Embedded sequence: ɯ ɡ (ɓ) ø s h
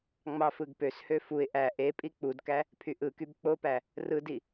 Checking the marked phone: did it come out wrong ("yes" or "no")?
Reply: yes